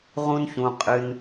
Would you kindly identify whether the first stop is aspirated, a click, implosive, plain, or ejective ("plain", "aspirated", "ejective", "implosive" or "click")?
ejective